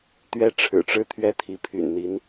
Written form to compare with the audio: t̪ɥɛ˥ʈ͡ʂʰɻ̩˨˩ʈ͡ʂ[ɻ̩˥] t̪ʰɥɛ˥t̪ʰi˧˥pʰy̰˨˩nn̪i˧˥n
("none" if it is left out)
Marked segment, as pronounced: ɻ̩˥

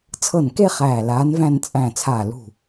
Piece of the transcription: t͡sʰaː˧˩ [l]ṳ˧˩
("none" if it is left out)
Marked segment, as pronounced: l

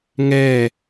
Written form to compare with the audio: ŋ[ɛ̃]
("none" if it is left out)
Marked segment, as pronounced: ɛ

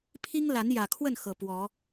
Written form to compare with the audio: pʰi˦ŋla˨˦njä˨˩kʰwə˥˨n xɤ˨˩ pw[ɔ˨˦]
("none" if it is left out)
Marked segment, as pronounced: ɔ˨˦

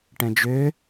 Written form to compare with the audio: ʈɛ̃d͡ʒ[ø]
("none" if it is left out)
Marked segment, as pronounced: ø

